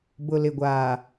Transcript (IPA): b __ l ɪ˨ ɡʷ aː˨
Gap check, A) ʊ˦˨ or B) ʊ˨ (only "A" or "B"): B